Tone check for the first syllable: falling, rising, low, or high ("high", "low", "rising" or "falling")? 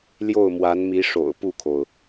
falling